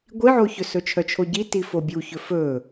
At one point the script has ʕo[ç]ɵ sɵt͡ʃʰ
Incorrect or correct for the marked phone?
correct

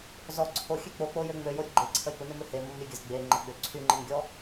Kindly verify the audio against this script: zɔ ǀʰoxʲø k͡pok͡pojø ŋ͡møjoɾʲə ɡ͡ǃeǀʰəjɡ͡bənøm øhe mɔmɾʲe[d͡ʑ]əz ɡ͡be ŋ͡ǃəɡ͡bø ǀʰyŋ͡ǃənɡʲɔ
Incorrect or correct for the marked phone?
incorrect: ɡʲ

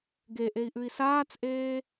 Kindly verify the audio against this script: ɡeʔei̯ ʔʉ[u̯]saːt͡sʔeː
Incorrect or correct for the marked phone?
incorrect: i̯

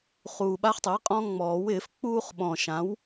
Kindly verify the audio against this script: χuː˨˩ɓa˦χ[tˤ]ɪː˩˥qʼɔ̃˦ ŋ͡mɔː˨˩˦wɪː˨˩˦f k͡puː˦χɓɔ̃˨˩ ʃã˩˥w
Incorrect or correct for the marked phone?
correct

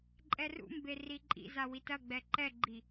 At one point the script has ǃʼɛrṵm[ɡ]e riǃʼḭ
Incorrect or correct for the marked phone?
incorrect: b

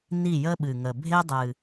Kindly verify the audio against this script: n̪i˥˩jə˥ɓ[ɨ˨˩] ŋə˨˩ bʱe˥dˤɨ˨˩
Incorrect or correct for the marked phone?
correct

